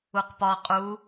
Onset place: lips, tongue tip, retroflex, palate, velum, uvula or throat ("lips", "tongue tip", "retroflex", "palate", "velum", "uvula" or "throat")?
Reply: uvula